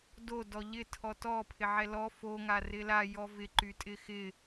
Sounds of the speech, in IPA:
d o d ɔ ʎ ɪ tʰ ɔ t ɔ pʰ ɪ ʕ ɛ l ɔ f o ŋ a r ɪ l a j ɔ v ɪ ǃ y tʼ ɪ x ɪ

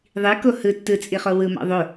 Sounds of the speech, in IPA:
ðˤ i k o h ɯ tː ɯ t͡sʼ i χ o w ɯ m ɑ̰ ðˤ o

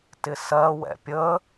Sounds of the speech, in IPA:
t ɪ s ɜ w ɛ̰ pʲ ə

